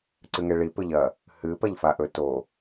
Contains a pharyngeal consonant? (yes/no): no